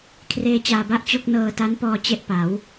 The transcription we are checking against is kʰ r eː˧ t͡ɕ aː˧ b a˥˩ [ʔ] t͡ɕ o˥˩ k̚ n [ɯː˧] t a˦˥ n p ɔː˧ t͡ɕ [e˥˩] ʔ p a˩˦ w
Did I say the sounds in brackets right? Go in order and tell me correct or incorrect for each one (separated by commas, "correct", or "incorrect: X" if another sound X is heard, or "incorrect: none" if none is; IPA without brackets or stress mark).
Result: correct, incorrect: ɤː˧, correct